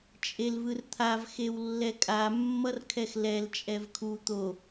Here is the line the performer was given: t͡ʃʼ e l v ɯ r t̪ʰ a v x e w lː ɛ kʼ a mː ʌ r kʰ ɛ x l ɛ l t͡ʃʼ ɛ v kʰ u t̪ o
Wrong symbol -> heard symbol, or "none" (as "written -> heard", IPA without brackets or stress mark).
none